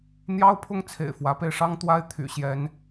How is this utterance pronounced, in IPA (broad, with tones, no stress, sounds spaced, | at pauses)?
n̪ j ɑ˦ ʊ̯ pʰ ʊ˦ ŋ t͡sʰ ḛ˨˩ ɪ̯ f w ä˨˦ p e˧ ɪ̯ ʂ ɑ˦ ŋ t̪ w a˦ ɪ̯ t̪ʰ y̰˨˩ ɕ j ɛ˨˦ n